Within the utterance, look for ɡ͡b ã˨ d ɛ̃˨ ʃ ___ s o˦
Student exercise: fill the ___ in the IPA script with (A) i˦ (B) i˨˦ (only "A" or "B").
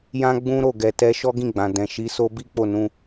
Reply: B